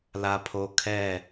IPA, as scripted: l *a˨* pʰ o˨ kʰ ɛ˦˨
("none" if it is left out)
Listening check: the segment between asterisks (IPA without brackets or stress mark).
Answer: a˨